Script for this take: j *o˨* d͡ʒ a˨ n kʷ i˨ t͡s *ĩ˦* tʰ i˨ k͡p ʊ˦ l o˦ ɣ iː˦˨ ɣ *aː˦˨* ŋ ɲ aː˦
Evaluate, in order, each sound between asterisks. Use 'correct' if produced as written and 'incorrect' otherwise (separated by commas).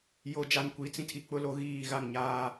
correct, correct, incorrect